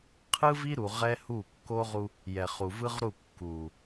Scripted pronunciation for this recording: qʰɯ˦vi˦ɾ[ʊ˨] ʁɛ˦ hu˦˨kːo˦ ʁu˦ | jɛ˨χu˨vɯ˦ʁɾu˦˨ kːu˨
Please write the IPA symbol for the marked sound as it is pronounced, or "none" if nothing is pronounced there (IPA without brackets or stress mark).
u˨